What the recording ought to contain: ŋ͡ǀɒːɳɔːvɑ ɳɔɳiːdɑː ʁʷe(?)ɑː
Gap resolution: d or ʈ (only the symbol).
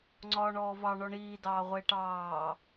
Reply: ʈ